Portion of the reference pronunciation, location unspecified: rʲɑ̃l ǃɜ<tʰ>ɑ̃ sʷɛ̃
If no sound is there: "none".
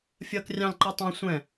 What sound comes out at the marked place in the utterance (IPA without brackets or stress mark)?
tˤ